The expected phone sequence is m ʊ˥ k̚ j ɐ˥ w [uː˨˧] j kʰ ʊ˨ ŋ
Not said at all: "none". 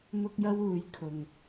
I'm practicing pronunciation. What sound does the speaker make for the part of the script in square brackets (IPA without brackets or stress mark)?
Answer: uː˨˧